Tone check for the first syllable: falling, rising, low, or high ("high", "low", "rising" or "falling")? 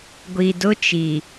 low